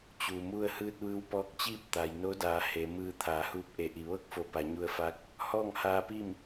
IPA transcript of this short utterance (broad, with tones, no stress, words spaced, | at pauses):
t͡ɕu˩mu˧ə̯ hɯː˧t̚ʋɯː˧wpɔː˧k̚t͡ɕiː˥˨p̚ t̪a˩jno˧˥daː˩˧ he˩˧ mɯː˧t̪ʰaː˩˧huː˧˥p̚ ʔe˩ʔi˩ʋɤː˥˨k̚fo˩˧ pa˩˧ɲu˧ə̯fa˧˥k̚ | hɔː˥˨ŋhaː˧pi˥˨m